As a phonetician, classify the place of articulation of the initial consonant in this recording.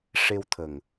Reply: retroflex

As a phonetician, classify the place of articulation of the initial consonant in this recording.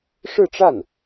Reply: retroflex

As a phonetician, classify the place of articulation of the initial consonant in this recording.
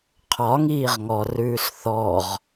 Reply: uvular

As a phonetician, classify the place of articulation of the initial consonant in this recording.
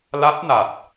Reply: alveolar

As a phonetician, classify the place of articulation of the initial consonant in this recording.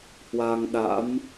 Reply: glottal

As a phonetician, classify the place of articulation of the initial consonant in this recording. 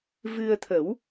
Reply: labial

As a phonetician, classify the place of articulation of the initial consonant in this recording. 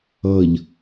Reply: palatal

